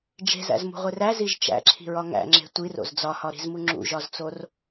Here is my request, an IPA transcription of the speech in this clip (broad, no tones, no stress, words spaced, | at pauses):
d͡ʒe̤zæ̰zmṳʁʷer æziʒ t͡ʃæ̰ǁʰi̤ɹɒ ŋæ̰ŋ͡ǁe̤ tʷiro̰z d͡zɒhɒɾi̤zmu ŋ͡ǁṵʒɒzt͡sor